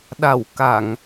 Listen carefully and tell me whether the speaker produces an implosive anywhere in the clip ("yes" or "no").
yes